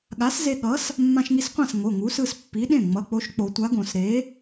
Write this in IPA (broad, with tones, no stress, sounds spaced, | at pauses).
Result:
ɠ a˨˥ s z e˧ ɠ ʌ˨˥ s | mː ã˧ ʃ ŋ i˧ s qʷ ã˥˩ s ŋ o˩˧˩ ŋ u˨˥ s ɯ˧ s pː i˨˥ ɗ ẽ˥˩ ŋ͡m ʌ˩˧˩ k͡p o˧ ʃ k͡p o˨˩˦ tʷ a˨˥ ɡ õ˨˩˦ s ɾ e˨˥